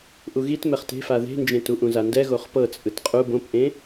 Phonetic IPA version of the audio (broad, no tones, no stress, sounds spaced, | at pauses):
ʔ u ɣ i t m ɛ χ t e̤ f a ð e̤ n d͡ʒ ẽ t u ʔ ũ z a n d ɛ ɣ o χ p ɤ t͡sʼ ɯ t qʼ u b õ p ʔ ẽ